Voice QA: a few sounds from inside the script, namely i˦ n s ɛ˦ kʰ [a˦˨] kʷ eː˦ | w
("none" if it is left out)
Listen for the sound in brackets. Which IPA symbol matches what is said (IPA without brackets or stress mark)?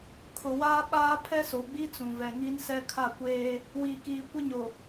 a˦˨